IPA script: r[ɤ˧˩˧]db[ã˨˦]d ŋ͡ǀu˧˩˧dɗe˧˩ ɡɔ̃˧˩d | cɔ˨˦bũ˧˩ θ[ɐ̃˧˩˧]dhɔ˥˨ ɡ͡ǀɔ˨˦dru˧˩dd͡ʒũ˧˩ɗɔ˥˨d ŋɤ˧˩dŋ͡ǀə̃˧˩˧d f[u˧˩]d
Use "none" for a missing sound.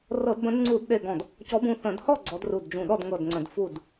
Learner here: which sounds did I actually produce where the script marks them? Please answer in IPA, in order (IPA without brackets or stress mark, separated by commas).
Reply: ɤ˧˩˧, ə̃˨˦, ə̃˧˩˧, u˧˩